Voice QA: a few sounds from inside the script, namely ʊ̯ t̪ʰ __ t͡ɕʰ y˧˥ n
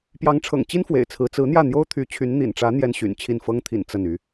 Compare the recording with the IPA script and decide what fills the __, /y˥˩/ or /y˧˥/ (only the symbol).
y˧˥